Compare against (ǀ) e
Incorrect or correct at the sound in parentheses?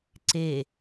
correct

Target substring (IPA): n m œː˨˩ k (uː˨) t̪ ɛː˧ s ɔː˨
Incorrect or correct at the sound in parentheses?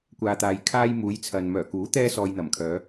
incorrect: uː˨˥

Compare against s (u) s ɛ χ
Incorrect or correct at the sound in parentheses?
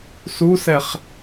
correct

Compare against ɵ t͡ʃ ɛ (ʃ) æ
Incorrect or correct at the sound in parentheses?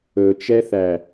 incorrect: θ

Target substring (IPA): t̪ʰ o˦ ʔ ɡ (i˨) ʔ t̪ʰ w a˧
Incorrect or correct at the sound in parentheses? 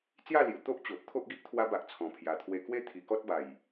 incorrect: i˦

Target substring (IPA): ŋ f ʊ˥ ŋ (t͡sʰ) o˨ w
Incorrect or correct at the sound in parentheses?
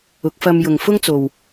incorrect: t͡s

